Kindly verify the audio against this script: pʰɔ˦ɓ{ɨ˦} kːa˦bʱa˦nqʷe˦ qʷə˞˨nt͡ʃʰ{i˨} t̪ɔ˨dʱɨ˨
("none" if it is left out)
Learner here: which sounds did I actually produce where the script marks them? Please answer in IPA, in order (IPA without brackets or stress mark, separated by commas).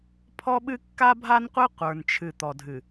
ɨ˦, ɨ˨